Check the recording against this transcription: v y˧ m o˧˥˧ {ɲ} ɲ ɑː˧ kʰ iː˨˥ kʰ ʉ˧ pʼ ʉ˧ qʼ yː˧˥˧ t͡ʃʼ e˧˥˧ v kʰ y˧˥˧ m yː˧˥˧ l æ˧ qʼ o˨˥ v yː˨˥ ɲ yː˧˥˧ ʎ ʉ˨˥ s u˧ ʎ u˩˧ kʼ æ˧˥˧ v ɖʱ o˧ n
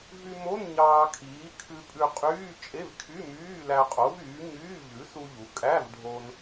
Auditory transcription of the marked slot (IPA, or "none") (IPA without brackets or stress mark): n